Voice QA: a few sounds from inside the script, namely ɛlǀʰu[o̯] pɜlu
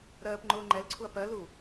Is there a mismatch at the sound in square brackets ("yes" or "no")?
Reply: yes